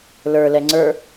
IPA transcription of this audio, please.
l ə˞ l ɛ ŋ͡ǀ ə˞

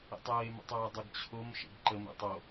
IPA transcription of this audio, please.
ḛ tˤ əː e̯ m ə̰ tˤ oː dˤ ɪ ɡ t͡ɕʰ o m ʃ ḛ ɡ ǃ ə m ḛ tˤ o

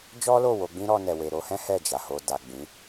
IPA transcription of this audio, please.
d͡ʒ ɔ˦ l o˦˨ w o˧ ɡ͡b ĩ˦ ɾ ɔ˧ n ɛ˨ w e˨ ɾ o˧ h ɛ̃˦ h ɛ˦˨ d͡ʒ a˨ h o˧ d a˨ ɡ͡b ĩ˨˦

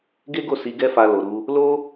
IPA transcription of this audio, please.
ɡ e˦ ɡ o˦˨ s i˨˦ ɡ ɛ˦ f a˧ l o˨ ɾ u˧ | l o˦

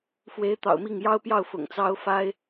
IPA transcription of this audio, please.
f w e˧˥ ɪ̯ t̪ ɑ̰˨˩ ʊ̯ m i˥˩ ŋ j ɑ˥ ʊ̯ p j ɑ˥˩ ʊ̯ f ʊ̰˨˩ ŋ t͡s ɑ˥ ʊ̯ f a˥ ɪ̯

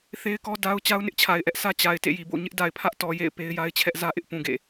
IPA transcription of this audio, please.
θ e˦ ɪ̯ k ɔ˦ d a˦ ʊ̯ t͡ɕ a˦ ʊ̯ n ɪ˦ ʔ t͡ɕʰ a˨ ɪ̯ ʔ ɛ˦ ʔ sʰ ä˦ t͡ɕ a˨ ɪ̯ t ḛ˦˨ j i˨ b o̰˦˨ ɲ ɪ˦ ʔ d a˨ ɪ̯ pʰ ä˦ ʔ t ɔ˨ j ḛ˦˨ ɪ̯ p e˦ ɪ̯ j a˦ ɪ̯ t͡ɕʰ ɛ˦ ʔ z ä˦ ʔ ɪ˦ ʔ p ũ˨ ɡ ḛ˦˨

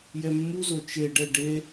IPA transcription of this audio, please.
j ɛ mː u z o t͡ʃ e ɖ ɛ ɖ e

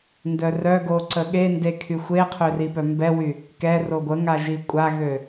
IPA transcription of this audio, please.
n d œ r œ ɡ o ǀ ə ɠ e n d e kʰ y xʷ e qʰ ø r i p œ m b ɛ w y | k ɛ r o ɡʷ ə ŋ a ʒ i kʷʼ a ɣ ø

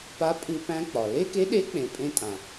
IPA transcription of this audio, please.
p a˧˥ pʼ ɨ˧ p æ̃˧ k͡p ɒ˩ l e˥ k e˧˥ ɗ e˧˥ k͡p ẽ˩ pʼ ẽ˧ tʼ ã˩

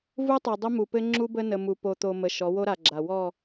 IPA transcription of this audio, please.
v u˦ tˤ o˨ dˤ ə˦ m u˨ p ɘ˦ ŋ͡ǁ u˦ b ə˦ n ə˨ m u˨ p o˨ t̪ o˨ m ə˨ ʃ ɔ˨˦ w o˦ ɾ a˨ ɡ͡ǁ a˨ w ɔ˦˨

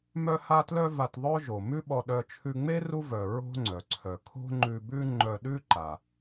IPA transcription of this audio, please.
m œ˥ h a˥ t l œ˥ v a˧ t ðˤ œ˥ ʒ o˩ m ʉ˥ ɓ ɔ˧ ɗ œ˧ t͡ʃʰ ʉ˧ ŋ͡m e˥ r u˥ v œ˩ ɹ o̤˥ ŋ͡ǀ œ˩ ǀʰ œ˩ kʰ o̤˥ ŋ͡ǃ ʉ˧ b ʉ˥ ŋ͡ǃ œ˧ ɗ ʉ˥ ǃ a˩

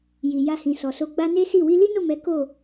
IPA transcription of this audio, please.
j i˨ j a˧ h ĩ˨ s ɔ˨ s o˧ ɡ͡b a˦ n e˦ s i˦˨ w i˧ l i˦ n o˦˨ m ɛ˨˦ k o˦˨

